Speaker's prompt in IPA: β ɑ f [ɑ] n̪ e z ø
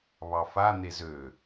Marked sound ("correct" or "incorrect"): incorrect